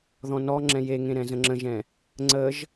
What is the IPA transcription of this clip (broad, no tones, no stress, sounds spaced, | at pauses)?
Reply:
ð ɔ̃ n ɔ ŋ͡ǁ ɛ̃ j e ŋ ẽ ɾ ɛ̃ z ə̃ ŋ͡ǁ ə̃ ʒ ɛ̃ | ŋ͡ǀ ə ʒ